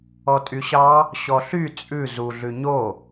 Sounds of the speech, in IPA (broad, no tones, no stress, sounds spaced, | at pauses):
ɔ tʼ y ɕ ɑ | ɕ ɔ ɬ y t͡sʼ ʉ z u ɮ ʉ ɲ o